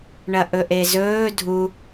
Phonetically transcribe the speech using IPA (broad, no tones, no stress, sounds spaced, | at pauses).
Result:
ɳ ɐ ʔ ɵ ʔ e z ɵː dʱ u